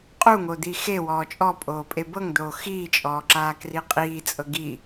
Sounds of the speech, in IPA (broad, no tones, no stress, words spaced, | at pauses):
qʼuŋo d̪ixewɔː t͡ʃʼɔ pʼoːpʼebɤŋd̪oː xiːt͡ʃʼɔː ǁaːkriqʼiːt͡sʼɤ ɡi